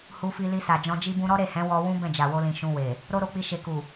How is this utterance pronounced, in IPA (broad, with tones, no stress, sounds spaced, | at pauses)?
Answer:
h u˧ f i˧ l i˧ s a˨ d͡ʒ ɔ̃˧ d͡ʒ i˦ b ũ˦ ɾ ɔ˦ ɾ e˦˨ h ɛ̃˨˦ w ɔ˦ w ũ˦ b ɛ̃˦˨ d͡ʒ a˨ w o˧ l ĩ˨ ʃ ũ˧ w e˨ | ɾ o˦ ɾ o˧ k͡p i˧ ʃ e˨ k u˨